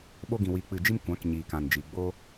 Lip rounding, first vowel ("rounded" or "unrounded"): rounded